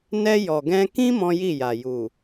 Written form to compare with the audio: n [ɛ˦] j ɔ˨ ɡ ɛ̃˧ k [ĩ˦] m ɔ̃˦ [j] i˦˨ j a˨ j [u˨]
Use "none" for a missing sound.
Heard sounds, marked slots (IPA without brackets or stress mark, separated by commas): ɛ˧, ĩ˦, j, u˨